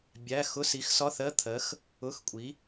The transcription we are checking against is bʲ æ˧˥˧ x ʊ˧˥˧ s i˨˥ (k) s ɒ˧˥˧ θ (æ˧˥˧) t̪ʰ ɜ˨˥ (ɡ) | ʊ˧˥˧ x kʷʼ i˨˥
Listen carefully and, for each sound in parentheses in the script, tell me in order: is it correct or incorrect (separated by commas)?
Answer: incorrect, incorrect, incorrect